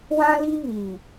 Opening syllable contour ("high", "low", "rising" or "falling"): high